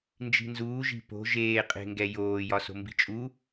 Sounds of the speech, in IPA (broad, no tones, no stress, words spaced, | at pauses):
nd͡ʒi̤nzuːʒi̤ po̤ ʒeːqʼe̤ŋɡɛ joː jɒso̤mbi̤t͡ʃʼu